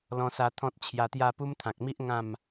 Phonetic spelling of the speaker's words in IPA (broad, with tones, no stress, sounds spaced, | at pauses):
l ɔ̃˧ s a˧ t̪ʰ ɔ̃˦ t̚ t͡ɕʰ j a˧ t̪ j a˥˧ p u˦ m t̪ʰ ã˨ k̚ m i˦ ʔ ŋ ã˥˧ m